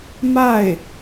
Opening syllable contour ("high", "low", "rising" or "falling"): falling